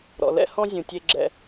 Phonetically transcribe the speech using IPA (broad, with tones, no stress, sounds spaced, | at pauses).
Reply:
ɾ ɔ̰˩ l ɛ̰˧ h ɔ̃˧ zʲ ũ˩ tʲ e˧ ɡ͡ǁ ɛ̰˧